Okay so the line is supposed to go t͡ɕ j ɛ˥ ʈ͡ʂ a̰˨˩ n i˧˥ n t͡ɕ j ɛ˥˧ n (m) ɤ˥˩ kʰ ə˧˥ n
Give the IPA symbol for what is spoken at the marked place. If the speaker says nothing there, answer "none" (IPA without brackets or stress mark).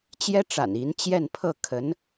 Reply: pʰ